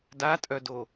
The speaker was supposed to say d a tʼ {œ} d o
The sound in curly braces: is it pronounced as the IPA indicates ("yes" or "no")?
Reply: yes